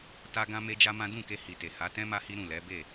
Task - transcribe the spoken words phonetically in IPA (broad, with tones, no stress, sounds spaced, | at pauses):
t a˦ ɡ ã˦ m e˦ d͡ʒ a˦ m ã˦ d ũ˦˨ k e˧ h i˨ t e˨ h a˨˦ t ɛ̃˦ m a˦ h i˦ ɾ ũ˦˨ l ɛ˨˦ b e˦˨